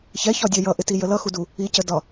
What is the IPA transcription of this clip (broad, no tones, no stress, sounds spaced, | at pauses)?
ç ɛ ç ɒ dʲ ɒ j ʌ ʔ ɪ t i j ə l ʌ x u d u | i c ə d ɒ